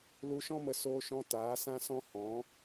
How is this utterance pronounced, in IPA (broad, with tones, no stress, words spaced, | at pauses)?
lu˧ʃɔ̃˦mə˧ soː˧ʃɔ̃˧ taː˨˦sã˦sɔ̃˦ hɔ̃˨˦